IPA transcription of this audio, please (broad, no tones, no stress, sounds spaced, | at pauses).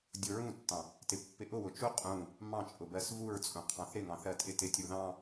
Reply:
dʲ ʊ ɹ ũ tː ɑ̃ | t ɪ pː ɪ ʔ ʊ w ʊ t͡ʃ u qʼ ũ | m ɑ̃ t͡ʃʼ ʊ b ɜ s v u ɹ t͡sʼ ũ qʰ ɑ̃ θ ɾ ɪ ŋ ɑ̃ θ ɜ tʼ ɪ t ɪ tʲ u ð ɑ̃